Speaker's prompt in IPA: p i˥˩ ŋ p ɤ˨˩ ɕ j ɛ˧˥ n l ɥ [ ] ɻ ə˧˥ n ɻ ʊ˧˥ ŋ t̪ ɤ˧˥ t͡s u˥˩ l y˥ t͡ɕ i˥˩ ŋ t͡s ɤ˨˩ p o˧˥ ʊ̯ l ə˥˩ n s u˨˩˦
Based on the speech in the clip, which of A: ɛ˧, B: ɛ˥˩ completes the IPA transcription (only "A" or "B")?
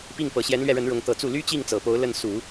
A